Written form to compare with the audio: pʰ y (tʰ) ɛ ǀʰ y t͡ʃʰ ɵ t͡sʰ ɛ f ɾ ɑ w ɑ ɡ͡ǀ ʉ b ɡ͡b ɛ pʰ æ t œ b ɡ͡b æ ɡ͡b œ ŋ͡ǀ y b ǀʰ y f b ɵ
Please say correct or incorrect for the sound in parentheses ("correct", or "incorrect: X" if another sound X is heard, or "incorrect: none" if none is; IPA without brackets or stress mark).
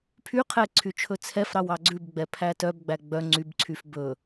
incorrect: qʰ